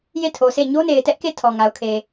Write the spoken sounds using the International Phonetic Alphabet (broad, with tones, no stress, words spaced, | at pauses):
je˦˨tʰo˨sʰe˦˨ ɲo˦ne˨ɪ̯tɛ˦ʔke˦˨ tʰɔ˨ŋa˨ʊ̯kʰe˨